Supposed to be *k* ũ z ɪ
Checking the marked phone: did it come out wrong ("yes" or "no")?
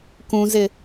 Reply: no